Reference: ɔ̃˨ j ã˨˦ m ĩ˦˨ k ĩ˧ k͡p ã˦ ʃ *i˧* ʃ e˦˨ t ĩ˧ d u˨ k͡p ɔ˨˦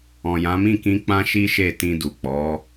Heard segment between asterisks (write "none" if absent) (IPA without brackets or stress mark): i˦